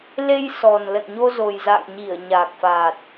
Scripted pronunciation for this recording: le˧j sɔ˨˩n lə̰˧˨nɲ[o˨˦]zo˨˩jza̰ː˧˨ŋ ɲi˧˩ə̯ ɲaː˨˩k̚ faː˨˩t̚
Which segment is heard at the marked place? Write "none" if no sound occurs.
o˧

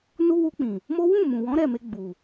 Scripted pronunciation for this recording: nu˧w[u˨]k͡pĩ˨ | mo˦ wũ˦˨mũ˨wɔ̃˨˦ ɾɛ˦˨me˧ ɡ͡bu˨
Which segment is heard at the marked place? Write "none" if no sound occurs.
u˧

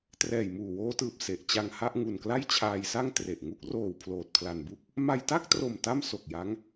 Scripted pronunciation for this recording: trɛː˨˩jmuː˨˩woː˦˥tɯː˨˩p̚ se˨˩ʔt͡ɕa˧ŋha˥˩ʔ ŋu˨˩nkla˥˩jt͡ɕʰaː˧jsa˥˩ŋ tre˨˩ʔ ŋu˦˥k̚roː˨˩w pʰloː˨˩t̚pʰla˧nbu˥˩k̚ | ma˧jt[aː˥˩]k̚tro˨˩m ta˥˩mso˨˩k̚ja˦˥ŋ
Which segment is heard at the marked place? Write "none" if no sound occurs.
a˥˩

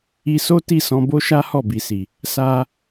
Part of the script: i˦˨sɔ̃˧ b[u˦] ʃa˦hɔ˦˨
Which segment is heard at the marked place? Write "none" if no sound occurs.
o˦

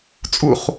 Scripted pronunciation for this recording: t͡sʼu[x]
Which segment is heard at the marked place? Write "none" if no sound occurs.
χ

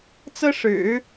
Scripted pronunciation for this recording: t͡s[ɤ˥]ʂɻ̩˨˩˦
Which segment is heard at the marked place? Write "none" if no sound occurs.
ɤ˥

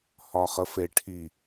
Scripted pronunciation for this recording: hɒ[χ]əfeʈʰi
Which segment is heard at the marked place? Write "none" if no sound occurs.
χ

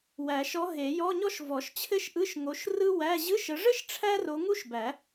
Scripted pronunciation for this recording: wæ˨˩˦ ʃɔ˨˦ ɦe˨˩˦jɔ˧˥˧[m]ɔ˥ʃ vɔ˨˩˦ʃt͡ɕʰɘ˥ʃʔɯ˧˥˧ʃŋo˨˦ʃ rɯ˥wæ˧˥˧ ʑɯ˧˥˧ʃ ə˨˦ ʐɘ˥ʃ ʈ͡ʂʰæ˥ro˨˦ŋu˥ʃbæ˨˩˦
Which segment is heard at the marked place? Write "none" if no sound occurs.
ɲ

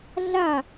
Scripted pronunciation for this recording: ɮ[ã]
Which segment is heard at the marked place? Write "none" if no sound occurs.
a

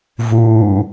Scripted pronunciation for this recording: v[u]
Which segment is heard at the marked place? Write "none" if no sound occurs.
uː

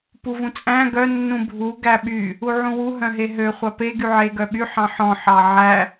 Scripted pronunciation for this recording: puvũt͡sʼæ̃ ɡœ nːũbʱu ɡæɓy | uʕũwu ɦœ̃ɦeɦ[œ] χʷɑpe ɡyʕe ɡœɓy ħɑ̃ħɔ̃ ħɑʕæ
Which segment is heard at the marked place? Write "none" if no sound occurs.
ø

